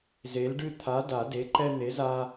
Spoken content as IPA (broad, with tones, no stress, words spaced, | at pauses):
ze˨˥lɖɨ˦ t̪ʰa˨˥da˨˩˦ de˨˥ǃɛ˦ n̪e˨˥za˦